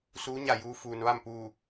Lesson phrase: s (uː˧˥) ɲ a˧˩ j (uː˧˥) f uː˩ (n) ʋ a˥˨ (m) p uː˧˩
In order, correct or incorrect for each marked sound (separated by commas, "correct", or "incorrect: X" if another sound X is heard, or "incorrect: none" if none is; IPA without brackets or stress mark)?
correct, correct, correct, correct